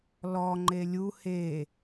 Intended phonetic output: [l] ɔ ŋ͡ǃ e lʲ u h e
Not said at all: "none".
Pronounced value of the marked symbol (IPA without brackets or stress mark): l